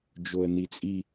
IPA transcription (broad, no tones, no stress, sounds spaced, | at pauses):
d͡ʒ o ə̯ n i t͡sʼ i